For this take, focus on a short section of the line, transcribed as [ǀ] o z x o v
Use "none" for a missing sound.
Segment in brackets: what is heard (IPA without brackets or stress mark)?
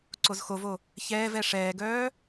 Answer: ǀ